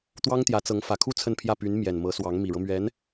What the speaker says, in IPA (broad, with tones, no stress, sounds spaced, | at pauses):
t̪ w ɑ˥ ŋ t̪ j ä˧˥ t͡s ɤ˧˥ ŋ f ä˨˩ kʰ u˥˧ t͡sʰ ə˥˧ n pʰ j ä˥˩ p y˧˥ n m j ɛ˨˩ n m ɤ˧˥ s w ɑ˧˥ ŋ m i˨˩ ɻ ɤ˦ m ɥ ɛ˧˥ n